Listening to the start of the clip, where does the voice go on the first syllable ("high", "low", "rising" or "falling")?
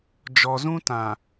low